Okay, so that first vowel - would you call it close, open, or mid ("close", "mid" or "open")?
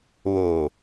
mid